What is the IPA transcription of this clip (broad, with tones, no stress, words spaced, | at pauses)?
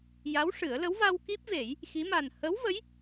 ja˧˥wʂɨ˨˩˦ə̯lə˧˥w va˧w ki˦˥p̚ve˨˩˦j | xi˧˥ ma˨˩nhə˧˥wvə˧˥j